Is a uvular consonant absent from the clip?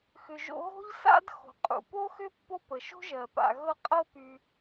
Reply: no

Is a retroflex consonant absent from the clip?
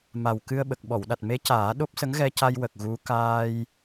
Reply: yes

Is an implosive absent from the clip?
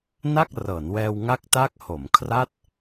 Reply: yes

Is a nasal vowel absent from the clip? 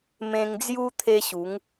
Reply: no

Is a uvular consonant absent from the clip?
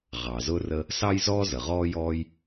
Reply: no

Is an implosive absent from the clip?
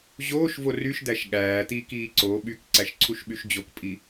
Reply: no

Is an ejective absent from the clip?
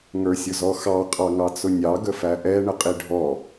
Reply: no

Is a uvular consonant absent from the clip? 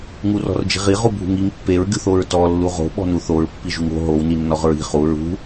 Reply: no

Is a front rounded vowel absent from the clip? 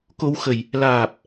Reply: yes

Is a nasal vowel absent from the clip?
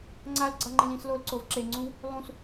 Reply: no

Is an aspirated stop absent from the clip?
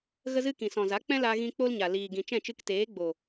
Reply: yes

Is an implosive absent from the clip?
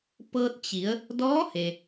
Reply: yes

